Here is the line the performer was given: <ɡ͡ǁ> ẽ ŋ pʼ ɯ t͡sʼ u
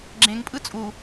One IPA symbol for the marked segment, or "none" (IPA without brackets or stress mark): ɡ͡ǁ